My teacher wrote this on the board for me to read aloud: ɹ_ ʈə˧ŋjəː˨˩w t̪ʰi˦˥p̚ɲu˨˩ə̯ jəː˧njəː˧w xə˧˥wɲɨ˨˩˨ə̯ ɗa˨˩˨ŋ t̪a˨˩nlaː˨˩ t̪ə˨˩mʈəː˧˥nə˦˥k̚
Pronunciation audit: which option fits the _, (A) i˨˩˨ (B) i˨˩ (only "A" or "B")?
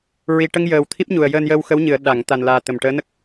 B